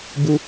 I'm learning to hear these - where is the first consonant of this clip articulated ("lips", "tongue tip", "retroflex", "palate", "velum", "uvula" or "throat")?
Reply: lips